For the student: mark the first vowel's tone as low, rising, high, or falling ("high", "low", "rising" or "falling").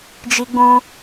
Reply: high